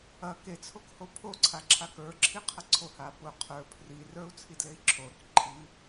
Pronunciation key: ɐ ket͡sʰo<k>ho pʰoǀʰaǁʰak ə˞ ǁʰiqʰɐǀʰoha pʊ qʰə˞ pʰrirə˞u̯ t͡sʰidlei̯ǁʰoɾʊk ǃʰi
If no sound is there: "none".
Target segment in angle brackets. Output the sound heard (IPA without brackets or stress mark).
k